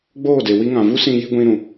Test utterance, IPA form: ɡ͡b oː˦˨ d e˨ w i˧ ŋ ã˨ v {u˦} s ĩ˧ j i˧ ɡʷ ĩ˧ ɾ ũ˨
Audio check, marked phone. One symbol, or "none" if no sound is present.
u˦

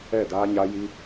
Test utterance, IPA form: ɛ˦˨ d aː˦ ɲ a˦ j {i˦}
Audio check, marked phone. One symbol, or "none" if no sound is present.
i˦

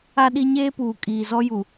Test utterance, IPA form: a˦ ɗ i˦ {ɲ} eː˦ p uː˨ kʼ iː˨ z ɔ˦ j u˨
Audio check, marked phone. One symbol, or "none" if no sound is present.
ɲ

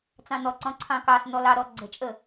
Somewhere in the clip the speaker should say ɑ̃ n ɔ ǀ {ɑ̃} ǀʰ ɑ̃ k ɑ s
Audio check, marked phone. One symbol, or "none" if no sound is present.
ɔ̃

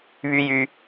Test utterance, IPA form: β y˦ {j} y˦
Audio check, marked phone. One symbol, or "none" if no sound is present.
j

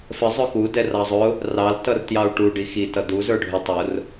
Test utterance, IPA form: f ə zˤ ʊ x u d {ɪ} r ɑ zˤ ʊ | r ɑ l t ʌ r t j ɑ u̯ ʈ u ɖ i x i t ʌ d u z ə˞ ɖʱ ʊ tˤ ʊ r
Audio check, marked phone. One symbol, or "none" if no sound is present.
ɛ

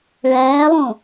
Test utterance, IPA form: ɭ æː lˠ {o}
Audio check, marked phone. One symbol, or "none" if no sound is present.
õ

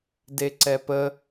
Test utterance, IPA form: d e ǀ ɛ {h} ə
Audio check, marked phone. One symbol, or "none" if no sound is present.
p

